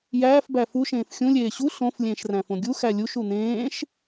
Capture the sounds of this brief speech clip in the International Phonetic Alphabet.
j æː f b æ f u ʃ ẽː f xʲ ũ lʲ eː ɕ u ɬ õ f lʲ ẽː ʃ r æ̃ f õ ɡʲ u x æ lʲ u ʃ u n̪ ẽː ʃ

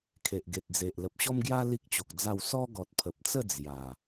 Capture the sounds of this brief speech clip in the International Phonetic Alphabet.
kʰ e˨ ʔ ɡ e˨ t̚ d͡z e˨ ʔ l ə˨ p̚ ɕ ɔ˦ m ɡ j a˦ l i˦ k̚ t͡ɕ o˨ k̚ d͡z a˥˧ w s ɔ˦ ɡ ɔ˨ t̚ pʰ ə˨ p̚ t͡s ə˥˧ d͡z j a˨˩

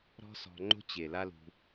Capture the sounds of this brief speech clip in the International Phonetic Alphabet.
ɾ ɔ̤˦ s ɔ̤˧ ŋ͡ǃ o̤˦ t͡ɕ e˨ l a˦ l ṳ˧

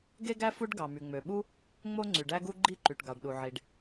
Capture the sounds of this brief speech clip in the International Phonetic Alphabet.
ɡ e˥ ɡ æ˥ f u˥ ɖ ɡ ɑ˩ m y˩ ŋ͡m ø˩ ɓ u˥ | ŋ͡m o˥ ŋ͡ǀ y˩ ɖ æ˥ ɡ u˥ ɡ͡ǃ i˥ ǃ y˩ ʈ ɡ ɑ˩ ɖ ɗ u˩ ʕ i˩ ɖ

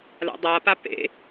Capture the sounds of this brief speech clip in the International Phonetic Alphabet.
l a̰ dˤ a p a p ḛ

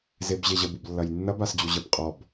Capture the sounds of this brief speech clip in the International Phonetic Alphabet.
z e b ʑ e ʑ ə b u b lː ɐ j nː ɐ b a s d͡ʑ u ʑ ə b qʼ ɔ b

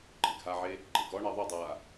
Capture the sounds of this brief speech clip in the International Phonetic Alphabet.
ǃʼ ɪ ɡʱ a ʕ e | ɡ͡ǃ e ɡ ɔ ɳ e ðˤ u dˤ a

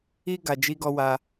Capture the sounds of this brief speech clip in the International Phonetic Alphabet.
i˧ ɡ a˨ d͡ʒ i˧ ɡ ɔ˧ w a˧

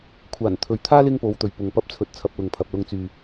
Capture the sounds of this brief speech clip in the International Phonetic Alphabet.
kʷʰ aː˨˩ n t̪ʰ ɵ˨ ɥ t̪ʰ aː˥ l ɪ˥ ŋ p o˨˧ w t̪ ɵ˨ ɥ p ʊ˨ ŋ p ɐ˧ p̚ t͡sʰ ɵ˨ t̚ t͡sʰ ɐ˧ p̚ l ʊ˨ ŋ pʰ ɐ˨ p̚ l ʊ˧ ŋ t͡s yː˨

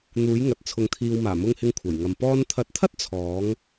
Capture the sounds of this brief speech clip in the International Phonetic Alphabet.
n̪ uː˨˥ j ŋ ɐ˨ t̚ t͡sʰ ʊ˨ ŋ t̪ʰ iː˨ w m aː˨˩ m ʊ˧ ŋ h ɪ˧ ŋ kʷʰ ɐ˨˩ j ŋ ɐ˨ m p ɔː˥ n t̪ʰ ɐ˨˥ t̚ t̪ʰ ɐ˥ t̚ t͡sʰ ɔː˨˥ ŋ

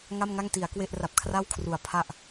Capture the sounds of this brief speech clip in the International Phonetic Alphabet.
ŋ a˥˩ m ŋ a˥˩ ŋ t i˩˦ a̯ k w e˥˩ ʔ r a˨˩ p̚ kʰ r a˥˩ w kʰ r u˨˩ a̯ pʰ a˥˩ ʔ

